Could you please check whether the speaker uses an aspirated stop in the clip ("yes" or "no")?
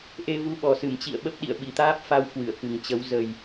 no